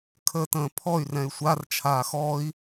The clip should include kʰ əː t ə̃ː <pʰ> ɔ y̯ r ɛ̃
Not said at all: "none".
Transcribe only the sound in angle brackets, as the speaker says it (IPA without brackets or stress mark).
pʰ